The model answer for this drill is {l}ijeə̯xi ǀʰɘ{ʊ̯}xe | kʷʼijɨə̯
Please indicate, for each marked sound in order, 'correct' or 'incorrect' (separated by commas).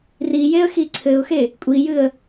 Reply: incorrect, correct